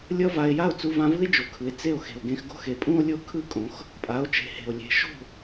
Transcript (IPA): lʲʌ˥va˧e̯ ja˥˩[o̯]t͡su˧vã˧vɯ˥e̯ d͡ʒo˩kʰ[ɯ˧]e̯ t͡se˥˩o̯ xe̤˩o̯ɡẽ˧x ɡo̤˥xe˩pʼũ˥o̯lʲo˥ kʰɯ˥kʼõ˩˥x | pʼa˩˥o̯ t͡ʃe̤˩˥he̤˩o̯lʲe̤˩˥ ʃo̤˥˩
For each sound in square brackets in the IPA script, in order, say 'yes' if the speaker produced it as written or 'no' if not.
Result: yes, no

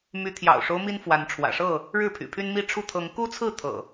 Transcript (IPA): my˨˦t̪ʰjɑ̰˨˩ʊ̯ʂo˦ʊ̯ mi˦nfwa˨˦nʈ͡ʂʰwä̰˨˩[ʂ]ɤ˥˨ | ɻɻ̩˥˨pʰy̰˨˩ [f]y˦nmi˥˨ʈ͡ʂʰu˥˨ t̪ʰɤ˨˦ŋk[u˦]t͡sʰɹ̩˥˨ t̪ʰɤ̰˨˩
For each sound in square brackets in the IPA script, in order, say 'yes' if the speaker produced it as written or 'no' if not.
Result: yes, no, yes

